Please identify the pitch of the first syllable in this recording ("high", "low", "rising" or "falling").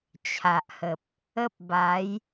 low